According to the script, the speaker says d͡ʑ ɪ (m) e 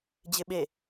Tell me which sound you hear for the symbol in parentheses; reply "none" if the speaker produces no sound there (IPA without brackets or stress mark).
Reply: ɓ